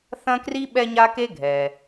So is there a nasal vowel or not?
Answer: yes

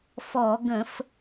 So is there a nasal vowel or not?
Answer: yes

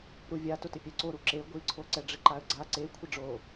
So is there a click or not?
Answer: yes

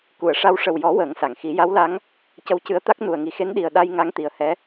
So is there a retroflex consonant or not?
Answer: yes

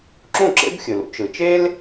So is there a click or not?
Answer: yes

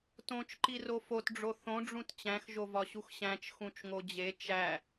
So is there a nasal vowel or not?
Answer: yes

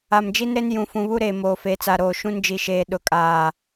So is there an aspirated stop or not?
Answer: no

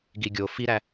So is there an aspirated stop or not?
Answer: no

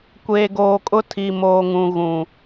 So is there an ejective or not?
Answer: yes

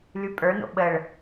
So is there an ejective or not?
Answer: yes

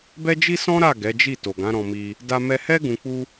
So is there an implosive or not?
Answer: no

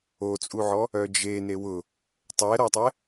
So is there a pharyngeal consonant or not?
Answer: yes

